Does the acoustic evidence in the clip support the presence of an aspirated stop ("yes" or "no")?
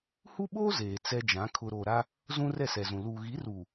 yes